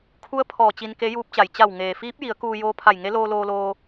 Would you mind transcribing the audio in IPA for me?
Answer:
kʰ u˧˥ ə̯ pʰ ɔː˧˩ t͡ɕ i˧ n k e˧˥ j uː˧˥ p̚ t͡ɕ a˩ j t͡ɕ a˧˩ w ŋ eː˩ f iː˧˥ p̚ j i˩˧ ə̯ k uː˧ j oː˧˥ pʰ a˧˩ j ŋ e˧˥ l oː˧ l oː˧ l oː˧

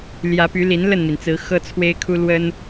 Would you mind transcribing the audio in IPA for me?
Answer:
l j ä˨˦ p y˨˦ l i˨˦ n l ə˥˨ n m i˩ n t͡s ɹ̩˨˦ x ɤ˦ t͡sʰ w e˦ ɪ̯ kʰ u˦ l w ə˦ n

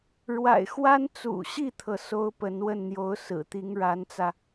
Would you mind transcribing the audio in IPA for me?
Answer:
ɻ w a̰˨˩ ɪ̯ x w a˥ n t͡s ṵ˨˩ ɕ i˥˩ t̪ʰ ɤ˩ s o˥ ʊ̯ p ə˧˥ n w ə˥˩ n n̪ j o˧˥ ʊ̯ s ɹ̩˨˩ t̪ i˧˥ ŋ ɻ a˧˥ n t͡s ä˧

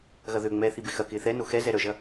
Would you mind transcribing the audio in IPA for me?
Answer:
ɣ ɐ ð ø ŋ͡m ɛː θ i b ɪ x ɐ k ɪː θ ɛ n o x ɛ z ɛ ɾ œ ʒ ɐ

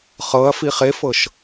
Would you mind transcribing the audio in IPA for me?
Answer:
χ ɤ ɐ̯ f i χ e f ɤ ʃ

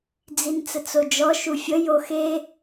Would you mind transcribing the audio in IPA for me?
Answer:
d͡z i n t͡s ə t͡s o d͡ʒ ɔ ʃ u fʲ ə j o x e

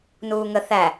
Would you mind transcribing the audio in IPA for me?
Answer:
n uː ŋ ə θ æ

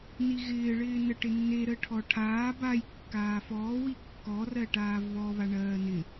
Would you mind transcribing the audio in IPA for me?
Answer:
n i ɣ ɪː ɭ ɪː n ə ʈ ɪ nː e ɾ əː ʈʰ ɔ ʈʰ aː b a j kː aː f ɔː w i kː ɔ r ɜ ʈ aː v β ɔ β a ɳ ɜː n ɪ

